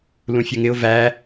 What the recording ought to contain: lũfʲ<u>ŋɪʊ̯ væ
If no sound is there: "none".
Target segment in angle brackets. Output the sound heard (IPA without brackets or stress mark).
u